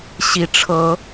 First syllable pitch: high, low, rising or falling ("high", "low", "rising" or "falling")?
rising